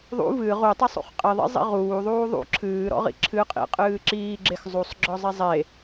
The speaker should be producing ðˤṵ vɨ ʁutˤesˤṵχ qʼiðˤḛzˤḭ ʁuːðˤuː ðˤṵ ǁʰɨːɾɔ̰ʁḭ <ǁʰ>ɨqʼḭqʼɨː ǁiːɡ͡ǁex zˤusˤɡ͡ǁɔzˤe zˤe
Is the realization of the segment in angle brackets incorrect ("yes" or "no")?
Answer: no